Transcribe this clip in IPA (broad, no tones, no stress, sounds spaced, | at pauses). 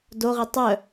d o ʁ i tˤ œ